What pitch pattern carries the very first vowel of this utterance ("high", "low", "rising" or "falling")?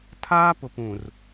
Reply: high